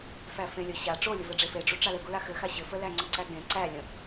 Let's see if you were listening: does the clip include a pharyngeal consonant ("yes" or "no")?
no